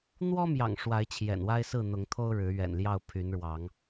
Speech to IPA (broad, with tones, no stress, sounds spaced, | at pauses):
n̪ w ɔ˦ m j ɑ̰˨˩ ŋ ʂ w a˨˦ ɪ̯ t͡ɕʰ j ɛ̰˨˩ n w a˦ ɪ̯ s ɹ̩˥˨ n̪ ʊ˨˦ ŋ t̪ʰ o˦ ʊ̯ ɻ ɻ̩˨˦ ɥ ɛ̰˨˩ n l j ɑ˥˨ ʊ̯ pʰ y˨˦ n ɻ w ɑ˨˦ ŋ